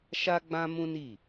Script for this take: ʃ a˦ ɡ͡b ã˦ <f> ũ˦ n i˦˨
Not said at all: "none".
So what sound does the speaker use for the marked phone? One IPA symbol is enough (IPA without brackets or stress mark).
m